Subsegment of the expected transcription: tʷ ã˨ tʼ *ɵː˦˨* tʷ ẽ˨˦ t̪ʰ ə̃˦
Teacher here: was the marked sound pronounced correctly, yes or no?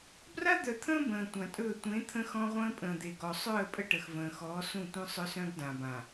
yes